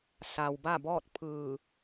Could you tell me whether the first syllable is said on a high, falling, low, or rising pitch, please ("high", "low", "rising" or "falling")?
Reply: low